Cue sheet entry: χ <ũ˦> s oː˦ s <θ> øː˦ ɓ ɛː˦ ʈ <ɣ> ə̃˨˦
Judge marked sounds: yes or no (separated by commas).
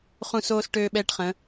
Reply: no, no, no